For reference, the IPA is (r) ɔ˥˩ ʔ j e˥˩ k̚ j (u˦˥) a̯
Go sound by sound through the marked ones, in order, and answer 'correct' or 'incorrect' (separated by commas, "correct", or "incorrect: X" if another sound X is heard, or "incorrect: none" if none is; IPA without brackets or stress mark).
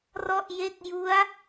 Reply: correct, correct